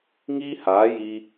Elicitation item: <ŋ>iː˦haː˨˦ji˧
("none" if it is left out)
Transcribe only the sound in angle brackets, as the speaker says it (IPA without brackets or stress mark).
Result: ŋ